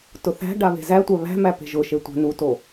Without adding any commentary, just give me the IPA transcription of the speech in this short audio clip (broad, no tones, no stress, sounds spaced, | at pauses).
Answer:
t ʊ θ æ̤ ɖ a β e̤ z æ tʷ æ β æ̤ m æ p e̤ ʒ ʊ ʃ e tʷ æ̤ n u t o